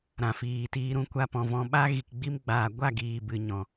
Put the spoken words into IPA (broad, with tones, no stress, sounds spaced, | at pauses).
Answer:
ɾ ã˨ f iː˨ t iː˧ ɾ ũ˧ kʷ a˧ p ɔ̃˨ v ɔ̃˧ ɓ a˧ ɣ i˨ k ɡ͡b i˧ m ɡ͡b aː˨ ɡʷ a˦˨ ɡ iː˨ b ɨ˨ ɲ ɔ̃˨